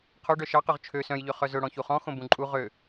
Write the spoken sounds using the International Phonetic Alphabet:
qʰ o ɖ œ ʃ ɑ q ø ʁ t͡ʃʰ ø s œ̃ j ʎ ø χ œ z ɵ ɽ ɔ̃ ç u χ ɔ̃ x õ b ũ ǃʼ u ʁ ø

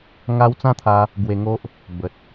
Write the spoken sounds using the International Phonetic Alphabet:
ŋ a˦ w t͡s ã˦ t̪ʰ a˧ | ɡ w e˧ ŋ o˦ ʔ | b ə˨ t̚

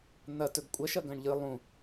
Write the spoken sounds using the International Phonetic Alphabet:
n̪ ɐ t ɵ ɡ kʷʼ ɐ ʃ ɐ ɡ ɐ̃ ɳ ʎ ɨ lˠ ũ

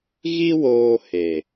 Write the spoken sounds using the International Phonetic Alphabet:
ɣ i˦ w oː˧ h e˨

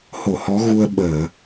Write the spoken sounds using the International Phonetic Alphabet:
h o˧˩ h ɔ˨˦ ɣ u˧ ə̯ ɓ əː˧˩˨

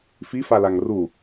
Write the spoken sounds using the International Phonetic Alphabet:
f i f a l a ŋ r u

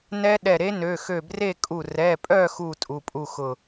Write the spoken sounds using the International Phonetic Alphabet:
n ɛ˦˥ ɗ ɛ˧˩ ɾ e˦˥ n ø˩˧˩ x ø˧˩ b r e˥˨ kʼ u˧˩ r ɛ˩˧˩ pʼ œ˥˨ x u˥˨ tʼ u˩˧˩ pʼ u˥˨ x ʊ˧˩

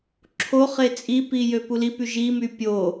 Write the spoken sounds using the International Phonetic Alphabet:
ǁʰ o χ e t͡sʼ i p i j ø p u l i p y ʒ i m y pʲ o

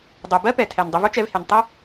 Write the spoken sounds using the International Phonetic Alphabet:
dˤ ɜ˩ b ɜ˥ p ɛ˩ tʰ ɛ˩ n dˤ ə˧ v o˥ t͡ʃ ɛ˧ v h e˩ n tˤ ɛ˥

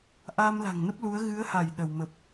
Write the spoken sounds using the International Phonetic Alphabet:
ʔ aː˧ m l a̤˨˩ ŋ n ə˦˥ p̚ l u˨˦ ə̯ ɣ ɨ˨˦ ə̯ h a˧˩ j ɗ ə˧˩ w m ə˨˩ p̚

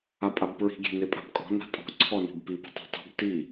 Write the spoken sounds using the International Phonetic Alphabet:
a pʼ a b p ɹ i̤ ɡʲ e̤ n e pʼ a̤ b kʼ ɔ̤ n a̤ tʼ ɔ̤ ǀʰ ɔ n i̤ b p i b i̤ tˤ ṳ tˤ ṳ b t i

